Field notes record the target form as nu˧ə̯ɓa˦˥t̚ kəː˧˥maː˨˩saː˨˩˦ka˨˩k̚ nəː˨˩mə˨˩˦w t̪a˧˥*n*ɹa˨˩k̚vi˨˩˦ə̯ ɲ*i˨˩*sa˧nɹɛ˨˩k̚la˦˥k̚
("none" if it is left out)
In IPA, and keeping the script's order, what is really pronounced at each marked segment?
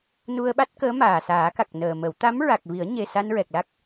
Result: m, e˨˩

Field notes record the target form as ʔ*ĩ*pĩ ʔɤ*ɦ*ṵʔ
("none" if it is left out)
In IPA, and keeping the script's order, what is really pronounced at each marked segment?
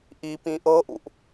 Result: i, ʔ

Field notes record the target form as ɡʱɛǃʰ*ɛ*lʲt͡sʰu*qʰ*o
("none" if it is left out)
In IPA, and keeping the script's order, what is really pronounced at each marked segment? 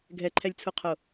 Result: ɛ, qʰ

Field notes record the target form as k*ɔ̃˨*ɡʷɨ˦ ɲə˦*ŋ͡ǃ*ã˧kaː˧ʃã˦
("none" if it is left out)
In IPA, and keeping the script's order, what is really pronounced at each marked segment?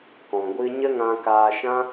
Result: ɔ̃˨, ŋ

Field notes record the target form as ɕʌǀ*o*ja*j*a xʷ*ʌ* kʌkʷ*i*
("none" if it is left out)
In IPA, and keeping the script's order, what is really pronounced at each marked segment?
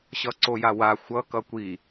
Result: o, w, ʌ, i

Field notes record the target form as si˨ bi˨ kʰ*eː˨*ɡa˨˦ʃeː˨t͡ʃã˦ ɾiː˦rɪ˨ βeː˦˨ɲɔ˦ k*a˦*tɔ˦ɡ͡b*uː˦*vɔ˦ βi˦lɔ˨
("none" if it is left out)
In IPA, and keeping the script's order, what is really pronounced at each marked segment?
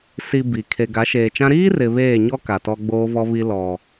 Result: e˨, a˨, oː˦

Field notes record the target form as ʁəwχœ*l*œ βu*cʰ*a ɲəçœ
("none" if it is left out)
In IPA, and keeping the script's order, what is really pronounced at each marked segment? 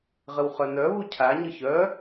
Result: n, cʰ

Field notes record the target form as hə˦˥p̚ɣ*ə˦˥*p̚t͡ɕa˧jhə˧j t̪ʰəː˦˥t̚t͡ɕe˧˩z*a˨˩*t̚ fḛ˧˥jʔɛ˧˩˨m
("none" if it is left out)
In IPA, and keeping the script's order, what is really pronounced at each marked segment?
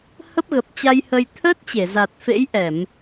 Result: ə˨˩, a˨˩

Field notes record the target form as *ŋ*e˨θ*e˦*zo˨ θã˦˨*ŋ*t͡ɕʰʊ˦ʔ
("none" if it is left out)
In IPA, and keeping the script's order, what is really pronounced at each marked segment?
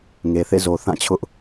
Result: ŋ, ḛ˦˨, none

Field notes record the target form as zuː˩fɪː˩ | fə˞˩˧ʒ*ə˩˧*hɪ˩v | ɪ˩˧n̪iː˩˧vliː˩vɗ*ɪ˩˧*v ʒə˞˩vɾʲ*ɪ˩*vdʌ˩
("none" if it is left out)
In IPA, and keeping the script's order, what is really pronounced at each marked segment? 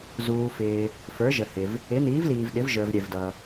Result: ə˩, ɪ˩˧, ɛ˩

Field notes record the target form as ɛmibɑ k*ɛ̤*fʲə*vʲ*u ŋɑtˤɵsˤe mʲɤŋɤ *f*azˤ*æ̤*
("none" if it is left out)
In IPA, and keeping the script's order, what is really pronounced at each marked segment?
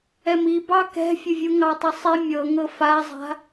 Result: ɛ̤, vʲ, f, a̤

